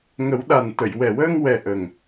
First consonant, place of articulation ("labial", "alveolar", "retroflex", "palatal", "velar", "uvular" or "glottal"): velar